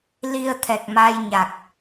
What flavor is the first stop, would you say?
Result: aspirated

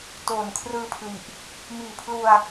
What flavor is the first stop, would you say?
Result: plain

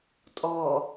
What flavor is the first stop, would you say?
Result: ejective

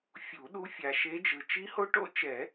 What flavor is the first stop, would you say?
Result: implosive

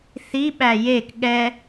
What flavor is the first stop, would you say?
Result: implosive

